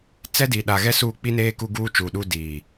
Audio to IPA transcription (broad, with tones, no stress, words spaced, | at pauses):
t͡sɛ˦di˨ɗa˨ ɣɛ˦suː˦˨k͡pi˦neː˦ ku˦ɡuː˦t͡ʃuː˨ɗu˦ diː˨